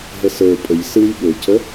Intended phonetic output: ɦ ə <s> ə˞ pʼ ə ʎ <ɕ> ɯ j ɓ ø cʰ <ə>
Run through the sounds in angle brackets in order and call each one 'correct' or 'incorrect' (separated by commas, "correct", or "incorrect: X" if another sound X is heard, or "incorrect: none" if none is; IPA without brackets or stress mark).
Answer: correct, incorrect: s, correct